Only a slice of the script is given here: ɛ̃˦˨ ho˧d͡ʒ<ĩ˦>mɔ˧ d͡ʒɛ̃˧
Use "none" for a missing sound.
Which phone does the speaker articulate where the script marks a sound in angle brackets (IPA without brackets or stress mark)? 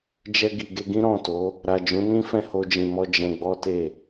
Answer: ĩ˨